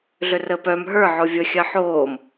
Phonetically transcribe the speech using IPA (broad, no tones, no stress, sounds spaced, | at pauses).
ɮ ʏ r əː p œ m ɦ ə˞ ʕ o vʲ ə xʲ ɜ ħ oː m